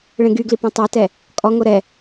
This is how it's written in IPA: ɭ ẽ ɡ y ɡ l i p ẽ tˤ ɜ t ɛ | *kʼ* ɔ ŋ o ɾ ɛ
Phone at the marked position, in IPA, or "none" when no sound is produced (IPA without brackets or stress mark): kʼ